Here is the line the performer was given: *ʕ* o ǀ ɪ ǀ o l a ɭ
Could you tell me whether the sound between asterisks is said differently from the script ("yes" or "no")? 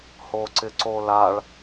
yes